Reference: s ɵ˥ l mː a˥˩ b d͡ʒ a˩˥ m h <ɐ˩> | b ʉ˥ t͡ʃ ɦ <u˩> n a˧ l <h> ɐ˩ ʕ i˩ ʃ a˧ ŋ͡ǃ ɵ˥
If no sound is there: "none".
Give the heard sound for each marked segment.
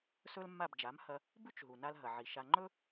ɐ˧, u˩, ɦ

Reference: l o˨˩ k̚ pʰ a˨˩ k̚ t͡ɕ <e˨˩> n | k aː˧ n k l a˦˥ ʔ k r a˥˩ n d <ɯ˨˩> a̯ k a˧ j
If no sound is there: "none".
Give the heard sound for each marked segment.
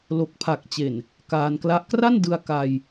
e˨˩, ɯ˧

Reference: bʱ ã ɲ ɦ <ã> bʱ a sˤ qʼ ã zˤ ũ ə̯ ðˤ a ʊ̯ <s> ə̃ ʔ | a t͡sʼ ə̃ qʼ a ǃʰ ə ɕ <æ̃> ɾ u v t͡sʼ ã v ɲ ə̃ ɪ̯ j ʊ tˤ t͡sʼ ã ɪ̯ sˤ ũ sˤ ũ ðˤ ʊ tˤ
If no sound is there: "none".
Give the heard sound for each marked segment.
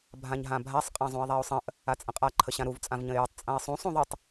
ã, sˤ, ã

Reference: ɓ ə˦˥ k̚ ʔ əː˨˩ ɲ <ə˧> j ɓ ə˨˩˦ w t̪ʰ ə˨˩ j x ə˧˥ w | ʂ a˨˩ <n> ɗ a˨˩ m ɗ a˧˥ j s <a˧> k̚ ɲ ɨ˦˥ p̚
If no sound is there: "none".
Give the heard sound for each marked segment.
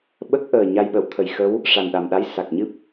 a˧, n, a˨˩

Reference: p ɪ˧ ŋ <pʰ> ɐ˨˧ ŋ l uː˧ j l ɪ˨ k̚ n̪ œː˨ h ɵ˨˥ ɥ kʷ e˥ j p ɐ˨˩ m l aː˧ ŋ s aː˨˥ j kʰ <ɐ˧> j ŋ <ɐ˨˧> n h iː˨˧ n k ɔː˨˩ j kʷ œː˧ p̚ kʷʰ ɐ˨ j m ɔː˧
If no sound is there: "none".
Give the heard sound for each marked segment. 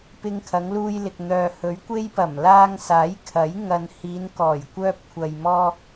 kʰ, ɐ˨˥, ɐ˨

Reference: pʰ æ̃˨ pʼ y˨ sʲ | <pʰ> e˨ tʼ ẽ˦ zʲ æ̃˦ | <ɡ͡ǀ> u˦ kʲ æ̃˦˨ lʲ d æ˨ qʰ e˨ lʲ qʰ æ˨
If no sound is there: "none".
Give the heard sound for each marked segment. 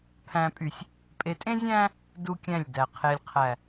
pʼ, d

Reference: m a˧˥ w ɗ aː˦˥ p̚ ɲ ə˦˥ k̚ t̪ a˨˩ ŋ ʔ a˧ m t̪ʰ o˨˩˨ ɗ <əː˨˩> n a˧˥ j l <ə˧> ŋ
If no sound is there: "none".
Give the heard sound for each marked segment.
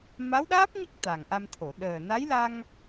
əː˨˩, a˧

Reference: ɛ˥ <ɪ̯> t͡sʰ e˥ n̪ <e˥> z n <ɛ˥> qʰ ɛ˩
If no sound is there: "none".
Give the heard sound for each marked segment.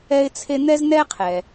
ɪ̯, ɛ˥, ɛ˥

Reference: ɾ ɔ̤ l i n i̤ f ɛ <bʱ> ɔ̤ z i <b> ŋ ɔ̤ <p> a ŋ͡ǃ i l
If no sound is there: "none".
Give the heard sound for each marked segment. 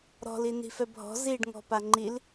bʱ, ɖ, p

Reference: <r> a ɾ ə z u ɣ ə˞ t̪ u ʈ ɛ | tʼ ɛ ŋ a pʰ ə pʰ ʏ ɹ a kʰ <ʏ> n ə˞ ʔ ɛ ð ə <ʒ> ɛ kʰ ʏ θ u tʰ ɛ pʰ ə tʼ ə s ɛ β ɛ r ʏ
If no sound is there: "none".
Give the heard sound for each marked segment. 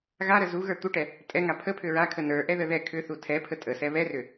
ɣ, ə, ð

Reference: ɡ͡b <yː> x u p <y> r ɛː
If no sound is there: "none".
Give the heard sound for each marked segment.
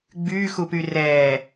yː, y

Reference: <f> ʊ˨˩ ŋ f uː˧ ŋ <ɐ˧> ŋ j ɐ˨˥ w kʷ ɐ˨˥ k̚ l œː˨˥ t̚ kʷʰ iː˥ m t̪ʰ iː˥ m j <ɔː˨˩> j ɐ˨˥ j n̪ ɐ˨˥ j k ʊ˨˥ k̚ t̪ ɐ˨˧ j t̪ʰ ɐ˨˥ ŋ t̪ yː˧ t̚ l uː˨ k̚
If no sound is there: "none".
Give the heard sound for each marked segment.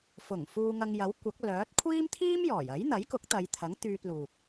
f, ɐ˧, ɔː˨˩

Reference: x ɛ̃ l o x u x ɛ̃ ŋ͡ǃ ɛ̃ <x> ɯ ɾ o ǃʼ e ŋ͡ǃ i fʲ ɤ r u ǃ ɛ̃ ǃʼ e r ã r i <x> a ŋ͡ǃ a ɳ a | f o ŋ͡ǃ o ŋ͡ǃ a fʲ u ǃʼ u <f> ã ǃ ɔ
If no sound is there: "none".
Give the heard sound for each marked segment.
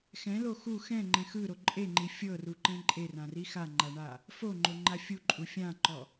x, x, fʲ

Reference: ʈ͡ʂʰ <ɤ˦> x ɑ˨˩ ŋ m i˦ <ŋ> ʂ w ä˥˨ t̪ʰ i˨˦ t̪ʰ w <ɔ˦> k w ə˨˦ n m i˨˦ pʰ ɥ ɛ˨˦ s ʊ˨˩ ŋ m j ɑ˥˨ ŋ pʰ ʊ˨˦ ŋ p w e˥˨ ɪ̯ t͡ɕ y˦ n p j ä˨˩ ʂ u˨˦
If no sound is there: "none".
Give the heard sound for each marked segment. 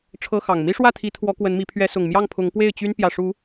ɤ˦, none, ɔ˨˦

